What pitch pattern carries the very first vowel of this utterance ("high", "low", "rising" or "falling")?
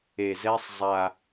low